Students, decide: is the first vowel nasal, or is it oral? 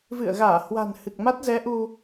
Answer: oral